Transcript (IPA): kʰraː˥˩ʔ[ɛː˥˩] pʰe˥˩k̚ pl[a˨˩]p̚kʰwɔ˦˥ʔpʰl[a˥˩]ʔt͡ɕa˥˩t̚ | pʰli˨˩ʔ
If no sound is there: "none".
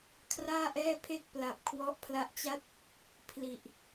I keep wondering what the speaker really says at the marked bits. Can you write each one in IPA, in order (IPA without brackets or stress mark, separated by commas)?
ɛː˥˩, a˨˩, a˦˥